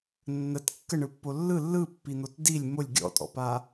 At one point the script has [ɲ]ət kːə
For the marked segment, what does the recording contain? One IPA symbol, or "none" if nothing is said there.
nː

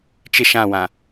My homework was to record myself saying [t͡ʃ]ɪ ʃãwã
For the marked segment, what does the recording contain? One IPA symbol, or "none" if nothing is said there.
t͡ʃ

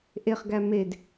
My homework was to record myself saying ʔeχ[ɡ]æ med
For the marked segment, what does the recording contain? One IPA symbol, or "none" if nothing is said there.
ɡ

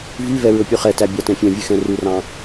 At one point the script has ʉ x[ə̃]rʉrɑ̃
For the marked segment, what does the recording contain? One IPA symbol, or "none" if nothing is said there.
ɛ̃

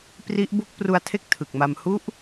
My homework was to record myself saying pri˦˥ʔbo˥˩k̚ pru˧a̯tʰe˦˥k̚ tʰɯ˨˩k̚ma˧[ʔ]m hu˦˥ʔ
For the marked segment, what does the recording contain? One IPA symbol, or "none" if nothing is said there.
none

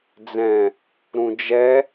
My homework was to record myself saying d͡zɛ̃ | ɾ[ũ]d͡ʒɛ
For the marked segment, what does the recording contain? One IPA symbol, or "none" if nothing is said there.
ũ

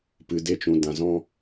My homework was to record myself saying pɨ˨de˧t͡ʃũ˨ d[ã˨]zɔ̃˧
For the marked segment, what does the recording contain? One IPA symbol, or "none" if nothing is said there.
ã˨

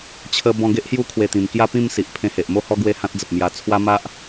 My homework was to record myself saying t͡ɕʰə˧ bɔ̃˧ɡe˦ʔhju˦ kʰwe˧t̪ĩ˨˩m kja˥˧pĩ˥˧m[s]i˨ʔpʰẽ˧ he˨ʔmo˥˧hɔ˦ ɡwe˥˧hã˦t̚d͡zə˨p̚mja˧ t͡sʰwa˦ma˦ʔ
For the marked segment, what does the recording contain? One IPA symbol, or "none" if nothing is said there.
s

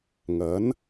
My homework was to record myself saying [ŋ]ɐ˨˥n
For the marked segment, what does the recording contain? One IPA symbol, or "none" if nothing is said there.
ŋ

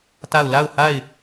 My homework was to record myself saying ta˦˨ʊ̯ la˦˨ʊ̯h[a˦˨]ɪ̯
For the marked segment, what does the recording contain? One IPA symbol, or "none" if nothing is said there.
a˦˨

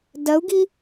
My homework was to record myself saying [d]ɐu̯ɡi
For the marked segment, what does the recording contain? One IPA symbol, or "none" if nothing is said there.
d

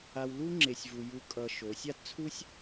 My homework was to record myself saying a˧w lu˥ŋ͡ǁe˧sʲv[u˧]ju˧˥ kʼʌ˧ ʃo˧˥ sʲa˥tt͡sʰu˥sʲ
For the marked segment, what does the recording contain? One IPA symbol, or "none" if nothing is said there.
u˧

